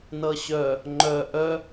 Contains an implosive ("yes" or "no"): no